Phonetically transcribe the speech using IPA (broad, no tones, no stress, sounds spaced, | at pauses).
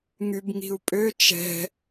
ŋ y b ŋ i̤ u̯ pʼ ø t͡ʃ ɛ̤